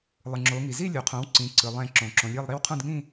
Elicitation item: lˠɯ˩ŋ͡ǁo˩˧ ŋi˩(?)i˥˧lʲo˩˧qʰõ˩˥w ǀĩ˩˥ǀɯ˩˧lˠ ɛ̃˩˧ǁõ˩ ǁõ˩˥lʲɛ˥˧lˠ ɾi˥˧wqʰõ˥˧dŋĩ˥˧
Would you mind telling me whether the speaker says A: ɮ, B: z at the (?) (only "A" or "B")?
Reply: B